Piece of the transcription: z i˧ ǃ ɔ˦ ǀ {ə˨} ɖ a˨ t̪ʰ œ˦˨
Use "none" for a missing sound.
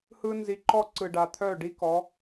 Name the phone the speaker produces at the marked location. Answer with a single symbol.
ɯ˨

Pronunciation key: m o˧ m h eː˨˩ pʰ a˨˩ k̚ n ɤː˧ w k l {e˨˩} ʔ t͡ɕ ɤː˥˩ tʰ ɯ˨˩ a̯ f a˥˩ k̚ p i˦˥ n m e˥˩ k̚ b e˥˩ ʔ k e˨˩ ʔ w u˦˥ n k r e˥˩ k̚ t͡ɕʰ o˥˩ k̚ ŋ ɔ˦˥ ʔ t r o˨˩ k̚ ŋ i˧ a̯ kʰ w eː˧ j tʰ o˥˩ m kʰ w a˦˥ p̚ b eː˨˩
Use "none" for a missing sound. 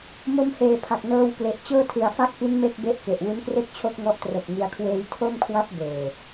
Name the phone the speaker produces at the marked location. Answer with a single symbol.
e˨˩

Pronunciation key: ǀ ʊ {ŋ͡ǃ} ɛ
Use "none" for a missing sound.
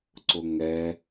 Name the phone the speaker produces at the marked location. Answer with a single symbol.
ŋ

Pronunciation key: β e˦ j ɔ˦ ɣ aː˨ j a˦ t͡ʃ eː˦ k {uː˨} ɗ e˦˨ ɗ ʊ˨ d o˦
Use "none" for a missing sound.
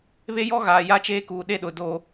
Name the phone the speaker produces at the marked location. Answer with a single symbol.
uː˨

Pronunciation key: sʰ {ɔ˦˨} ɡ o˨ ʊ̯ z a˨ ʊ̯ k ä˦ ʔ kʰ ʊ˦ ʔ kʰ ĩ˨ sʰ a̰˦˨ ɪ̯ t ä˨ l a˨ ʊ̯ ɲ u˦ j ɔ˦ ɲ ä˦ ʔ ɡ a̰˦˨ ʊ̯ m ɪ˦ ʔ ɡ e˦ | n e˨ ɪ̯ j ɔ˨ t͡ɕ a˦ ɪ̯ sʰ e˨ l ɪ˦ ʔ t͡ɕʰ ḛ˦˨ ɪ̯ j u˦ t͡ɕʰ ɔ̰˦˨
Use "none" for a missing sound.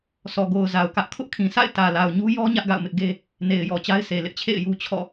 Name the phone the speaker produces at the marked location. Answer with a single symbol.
ɔ˨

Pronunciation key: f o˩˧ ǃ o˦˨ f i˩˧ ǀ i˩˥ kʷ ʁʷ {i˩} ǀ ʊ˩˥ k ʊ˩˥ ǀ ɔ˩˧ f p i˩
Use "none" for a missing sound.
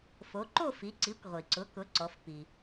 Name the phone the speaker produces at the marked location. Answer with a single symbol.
i˩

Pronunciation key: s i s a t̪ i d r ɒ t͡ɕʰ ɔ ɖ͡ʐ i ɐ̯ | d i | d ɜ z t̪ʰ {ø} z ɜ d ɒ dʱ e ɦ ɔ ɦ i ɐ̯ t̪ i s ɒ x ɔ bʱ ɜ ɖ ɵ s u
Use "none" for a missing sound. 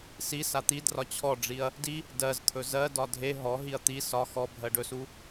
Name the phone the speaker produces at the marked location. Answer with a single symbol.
ɵ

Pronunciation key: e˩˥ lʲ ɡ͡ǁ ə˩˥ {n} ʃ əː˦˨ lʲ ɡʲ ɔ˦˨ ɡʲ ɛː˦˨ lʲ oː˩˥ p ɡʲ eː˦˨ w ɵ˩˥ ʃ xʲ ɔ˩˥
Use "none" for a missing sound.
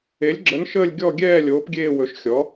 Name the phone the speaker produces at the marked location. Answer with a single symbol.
n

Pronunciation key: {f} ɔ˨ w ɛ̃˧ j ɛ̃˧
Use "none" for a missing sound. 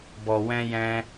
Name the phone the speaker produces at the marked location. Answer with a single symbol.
b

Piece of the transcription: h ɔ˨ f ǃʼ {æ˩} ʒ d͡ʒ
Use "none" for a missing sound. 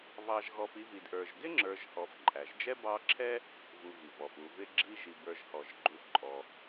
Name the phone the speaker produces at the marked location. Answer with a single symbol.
æ˩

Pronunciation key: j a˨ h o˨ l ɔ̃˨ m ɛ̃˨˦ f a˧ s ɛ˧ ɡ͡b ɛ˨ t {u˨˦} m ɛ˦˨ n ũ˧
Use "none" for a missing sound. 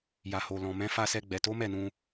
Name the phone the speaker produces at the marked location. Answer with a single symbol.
o˨˦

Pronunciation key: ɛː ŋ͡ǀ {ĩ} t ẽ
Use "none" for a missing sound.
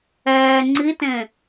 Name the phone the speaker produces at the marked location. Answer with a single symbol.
i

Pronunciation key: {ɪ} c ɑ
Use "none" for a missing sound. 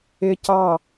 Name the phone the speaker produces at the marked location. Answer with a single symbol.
ɪ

